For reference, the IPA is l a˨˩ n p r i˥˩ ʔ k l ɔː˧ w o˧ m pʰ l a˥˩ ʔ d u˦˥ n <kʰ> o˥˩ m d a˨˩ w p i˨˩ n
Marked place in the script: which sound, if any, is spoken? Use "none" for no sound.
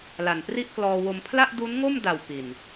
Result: ŋ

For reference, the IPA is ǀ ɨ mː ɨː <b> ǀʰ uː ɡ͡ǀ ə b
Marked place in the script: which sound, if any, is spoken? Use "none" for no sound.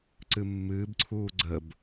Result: b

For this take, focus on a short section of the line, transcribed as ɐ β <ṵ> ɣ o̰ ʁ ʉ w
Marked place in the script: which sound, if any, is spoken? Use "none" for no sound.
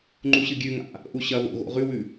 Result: o̰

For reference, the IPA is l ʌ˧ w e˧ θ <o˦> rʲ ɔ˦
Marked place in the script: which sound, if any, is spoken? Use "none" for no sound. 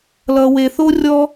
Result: o˦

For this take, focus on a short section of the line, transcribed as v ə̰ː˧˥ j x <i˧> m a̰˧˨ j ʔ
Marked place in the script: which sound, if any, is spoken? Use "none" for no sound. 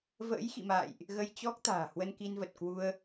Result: ḭ˧˨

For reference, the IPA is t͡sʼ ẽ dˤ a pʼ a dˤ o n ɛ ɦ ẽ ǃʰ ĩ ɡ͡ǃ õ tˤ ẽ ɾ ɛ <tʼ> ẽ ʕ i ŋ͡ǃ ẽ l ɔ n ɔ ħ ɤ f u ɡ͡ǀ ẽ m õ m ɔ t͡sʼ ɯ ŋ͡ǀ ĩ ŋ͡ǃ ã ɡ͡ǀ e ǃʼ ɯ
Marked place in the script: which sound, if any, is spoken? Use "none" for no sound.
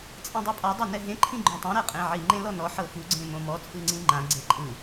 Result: qʼ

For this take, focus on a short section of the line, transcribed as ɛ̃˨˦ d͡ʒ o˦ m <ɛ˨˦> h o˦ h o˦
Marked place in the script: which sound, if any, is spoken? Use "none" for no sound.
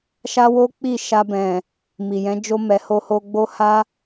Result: ɛ˧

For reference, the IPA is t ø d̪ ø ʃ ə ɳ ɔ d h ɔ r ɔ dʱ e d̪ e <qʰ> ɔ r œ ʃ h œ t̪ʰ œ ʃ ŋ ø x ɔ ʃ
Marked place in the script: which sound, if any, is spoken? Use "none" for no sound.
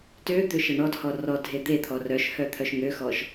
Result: t̪ʰ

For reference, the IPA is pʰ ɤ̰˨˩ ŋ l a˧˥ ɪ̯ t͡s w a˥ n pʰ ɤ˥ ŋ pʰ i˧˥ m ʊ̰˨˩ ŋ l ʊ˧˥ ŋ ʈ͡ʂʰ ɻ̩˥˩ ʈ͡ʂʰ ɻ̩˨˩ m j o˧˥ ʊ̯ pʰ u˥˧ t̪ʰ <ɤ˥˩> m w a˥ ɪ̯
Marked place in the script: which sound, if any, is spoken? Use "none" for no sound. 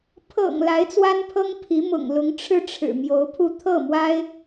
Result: ɤ˥˩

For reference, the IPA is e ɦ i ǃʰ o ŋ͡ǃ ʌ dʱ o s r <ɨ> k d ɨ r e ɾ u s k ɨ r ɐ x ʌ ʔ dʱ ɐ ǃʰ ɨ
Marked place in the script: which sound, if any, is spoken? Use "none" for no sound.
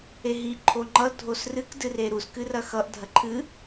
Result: ɨ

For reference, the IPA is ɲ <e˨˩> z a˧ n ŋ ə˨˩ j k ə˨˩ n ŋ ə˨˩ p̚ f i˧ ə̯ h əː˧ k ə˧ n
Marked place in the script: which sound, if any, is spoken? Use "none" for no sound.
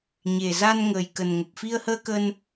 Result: e˨˩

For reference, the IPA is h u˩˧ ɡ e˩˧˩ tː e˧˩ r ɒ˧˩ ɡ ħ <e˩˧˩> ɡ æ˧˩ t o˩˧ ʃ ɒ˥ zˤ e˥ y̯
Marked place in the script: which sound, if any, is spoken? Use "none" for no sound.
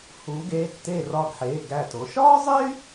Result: e˩˧˩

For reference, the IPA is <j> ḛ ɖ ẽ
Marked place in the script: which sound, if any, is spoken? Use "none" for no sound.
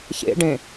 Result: ç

